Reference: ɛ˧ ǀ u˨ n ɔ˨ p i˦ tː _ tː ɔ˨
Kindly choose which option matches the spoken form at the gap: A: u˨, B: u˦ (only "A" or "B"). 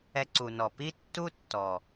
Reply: B